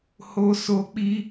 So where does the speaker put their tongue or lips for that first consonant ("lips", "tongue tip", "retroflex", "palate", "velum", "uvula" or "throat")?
throat